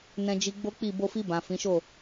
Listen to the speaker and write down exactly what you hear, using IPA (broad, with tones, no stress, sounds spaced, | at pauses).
n ɛ̃˧ d͡ʒ i˧ ɡ͡b o˦ k͡p i˦˨ b o˧ f i˧ b ã˨ f ĩ˨˦ ʃ o˦˨